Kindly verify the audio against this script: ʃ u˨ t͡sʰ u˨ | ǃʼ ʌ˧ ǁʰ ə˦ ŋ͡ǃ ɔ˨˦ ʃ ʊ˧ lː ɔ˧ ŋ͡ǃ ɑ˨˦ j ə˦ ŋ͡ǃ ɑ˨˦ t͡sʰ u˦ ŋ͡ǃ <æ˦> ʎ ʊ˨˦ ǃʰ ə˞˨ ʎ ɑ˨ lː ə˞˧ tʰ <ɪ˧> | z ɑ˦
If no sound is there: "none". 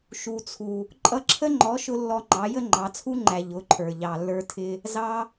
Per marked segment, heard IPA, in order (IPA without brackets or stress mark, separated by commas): æ˨, ɪ˧